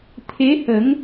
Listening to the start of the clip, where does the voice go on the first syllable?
rising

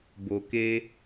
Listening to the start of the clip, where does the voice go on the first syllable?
low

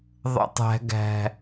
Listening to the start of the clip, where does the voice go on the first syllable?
high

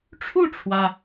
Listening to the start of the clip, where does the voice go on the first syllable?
falling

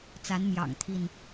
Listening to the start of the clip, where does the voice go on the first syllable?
rising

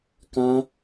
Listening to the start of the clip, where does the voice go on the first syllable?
high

